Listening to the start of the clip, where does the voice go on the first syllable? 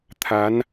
rising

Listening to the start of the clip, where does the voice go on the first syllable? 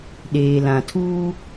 low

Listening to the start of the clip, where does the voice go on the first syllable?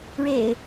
low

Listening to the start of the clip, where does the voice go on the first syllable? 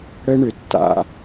high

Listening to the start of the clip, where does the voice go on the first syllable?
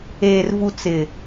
low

